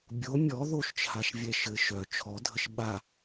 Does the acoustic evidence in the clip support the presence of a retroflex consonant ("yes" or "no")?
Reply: no